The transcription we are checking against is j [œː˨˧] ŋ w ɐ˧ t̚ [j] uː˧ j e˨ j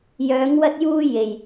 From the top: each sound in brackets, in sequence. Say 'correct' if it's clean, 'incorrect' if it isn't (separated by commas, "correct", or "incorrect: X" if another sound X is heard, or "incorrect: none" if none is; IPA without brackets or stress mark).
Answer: correct, correct